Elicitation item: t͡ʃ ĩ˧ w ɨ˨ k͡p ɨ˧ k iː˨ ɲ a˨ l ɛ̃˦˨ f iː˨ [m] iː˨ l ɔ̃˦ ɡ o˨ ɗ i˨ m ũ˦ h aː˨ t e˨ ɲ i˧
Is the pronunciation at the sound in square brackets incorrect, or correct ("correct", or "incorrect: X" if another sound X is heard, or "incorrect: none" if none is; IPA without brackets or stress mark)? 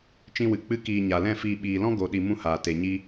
incorrect: ɓ